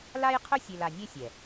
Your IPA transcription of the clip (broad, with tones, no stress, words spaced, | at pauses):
la˦jqʰʊ˦ sʲe˧la˧nʲe˦sʲɛ˨